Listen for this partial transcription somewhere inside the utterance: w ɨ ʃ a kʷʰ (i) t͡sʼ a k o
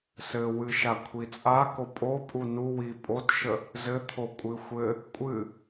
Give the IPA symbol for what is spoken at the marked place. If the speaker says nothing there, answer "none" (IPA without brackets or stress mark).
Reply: i